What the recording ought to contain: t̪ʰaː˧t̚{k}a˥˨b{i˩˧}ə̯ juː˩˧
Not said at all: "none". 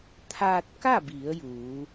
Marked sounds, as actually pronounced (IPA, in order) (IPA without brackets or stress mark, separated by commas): k, i˩˧